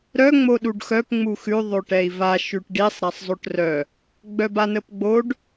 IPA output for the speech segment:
ɾ œ ŋ͡m o ɗ u ɖ x œ p ŋ͡m u x ʉ ðˤ o ʈ ɛ i̯ v a ʃ ʉ ʈ ɖ i sˤ ɾ a sˤ zˤ o ʈ r œ | ɡ͡b œ b a n ə p ɡ͡b o ɖ

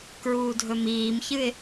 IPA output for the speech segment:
k ɹ uː dʱ ɵ m iː m ç ɨ ɪ̯

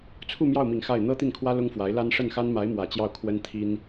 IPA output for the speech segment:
t͡sʰ u˥˧ m j ɑ˥˩ ʊ̯ m i˨˩ ŋ x a˥˩ ɪ̯ n̪ ɤ˥ t̪ i˥˩ n kʰ w ä˥ l ʊ˥ ŋ f w a˧˥ ɪ̯ l a˥ n ʂ ə˥˩ n x a˥ n m a˧˥ ɪ̯ m w ä˨˩ t͡ɕ j ɑ˥˩ ʊ̯ kʰ w ə˥ n t̪ʰ i˥ n

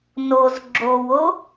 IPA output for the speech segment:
n o z ɡ͡ǁ o w o

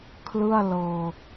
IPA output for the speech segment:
kʰ l ɯ˥˩ a̯ l ɤː˧

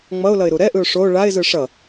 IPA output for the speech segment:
ŋ͡m ʌ ʊ̯ l ʌ ɪ̯ ɾ u ɾ ɛ ʔ ɯ ʊ̯ ʂ o ɭ a ɪ̯ z ɯ ʂ ʌ

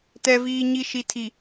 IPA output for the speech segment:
t ɛ˨ v iː˨ ɲ i˨ ʃ i˨ tʰ i˨

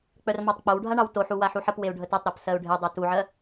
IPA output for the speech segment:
k͡p œ r m ɑ tˤ k͡p o w ɖʱ a ɳ ɑ w t o ħ u w a ħ u ħ ə p w e u̯ ɖʱ ə t œ tˤ ɾ a p s ɜ u̯ ɖʱ e dˤ u t u ʕ ɜ

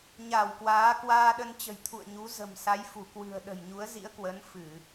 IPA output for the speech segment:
ɲ a˧˩ w k w aː˨˦ k w aː˧ ɗ ə˧ n t͡ɕ ə̤˨˩ j t̪ʰ ṵ˧˨ ə̯ ɲ u˨˦ z ə̤˨˩ m s a˨˦ j f u˧˩ k w ɨ̤˨˩ ə̯ ɗ ə̤˨˩ j ɲ u˨˦ ə̯ z ḭ˧˥ ə̯ k w ə˨˦ n f ɨ˧˩˨

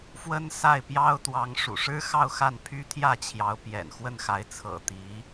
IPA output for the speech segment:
f w ə˥ n s a˥˩ ɪ̯ p j ɑ˥ ʊ̯ t̪ w ɑ˧˥ ŋ ʂ ṵ˨˩ ʂ ɻ̩˥ x ɑ˥˧ ʊ̯ x a˥˩ n pʰ y˥ t̪ʰ j ä˥˩ t͡ɕʰ j ɑ˧˥ ʊ̯ p j ɛ̰˨˩ n x w ə˥˩ n x a˧˥ ɪ̯ t͡sʰ ɤ̰˨˩ t̪ i˧˥

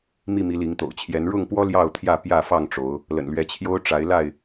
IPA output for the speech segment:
m i˥˨ m i˨˦ l i˨˦ ŋ t̪ o̰˨˩ ʊ̯ t͡ɕʰ j ɛ˨˦ n ɻ ʊ˥˨ ŋ p w ɔ˦ l j ɑ˥˨ ʊ̯ t̪ʰ j ä˥˨ p j ä˥˨ f ɑ˥˨ ŋ ʈ͡ʂ o˨˦ ʊ̯ | l ə̰˨˩ n l ɥ ɛ˨˦ t͡ɕʰ j o˦ ʊ̯ ʈ͡ʂ a˨˦ ɪ̯ l a˥˨ ɪ̯

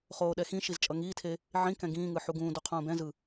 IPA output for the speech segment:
χ oː ɗ ɛ x ĩ ʃ i z t͡ʃʼ ʌ ŋ iː tʰ e | ʕ ĩ k ɛ̃ ɡ ĩː ŋ ɯ ħ u ɡ ũː d u qʰ ũː b ɛ̃ z ɯ

